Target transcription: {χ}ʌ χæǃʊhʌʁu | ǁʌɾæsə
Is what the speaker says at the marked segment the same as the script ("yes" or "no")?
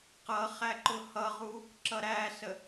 no